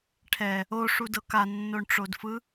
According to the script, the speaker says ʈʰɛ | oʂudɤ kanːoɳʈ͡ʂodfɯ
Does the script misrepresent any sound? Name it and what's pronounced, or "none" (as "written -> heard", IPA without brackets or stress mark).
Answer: none